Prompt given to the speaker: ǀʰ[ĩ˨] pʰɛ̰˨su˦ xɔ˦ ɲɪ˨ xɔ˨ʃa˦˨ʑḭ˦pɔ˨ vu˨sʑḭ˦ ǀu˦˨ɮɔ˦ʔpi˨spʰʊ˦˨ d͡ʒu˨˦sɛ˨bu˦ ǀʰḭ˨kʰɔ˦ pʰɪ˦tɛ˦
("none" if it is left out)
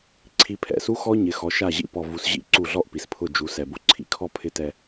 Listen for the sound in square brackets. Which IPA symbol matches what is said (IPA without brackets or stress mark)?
i˨